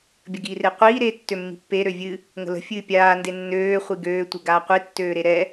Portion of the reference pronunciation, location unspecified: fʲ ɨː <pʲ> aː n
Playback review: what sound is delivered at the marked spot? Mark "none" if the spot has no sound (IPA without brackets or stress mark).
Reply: pʲ